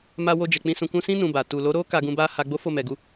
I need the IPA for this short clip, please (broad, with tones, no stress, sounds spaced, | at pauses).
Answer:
m a˧ w o˧ d͡ʒ ɛ˨ k͡p ĩ˧ s ũ˨ k ũ˧ s ĩ˦ n ũ˧ b a˨ t u˨ l o˨˦ ɾ o˦ k a˧ ɡ ũ˧ b a˦ h a˧ ɡ͡b o˦ f o˦˨ m ɛ˨ ɡ u˧